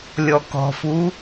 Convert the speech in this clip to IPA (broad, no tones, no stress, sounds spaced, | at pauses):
lʲ ɔ k ɔ̤ f u